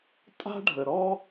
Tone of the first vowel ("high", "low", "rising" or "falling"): high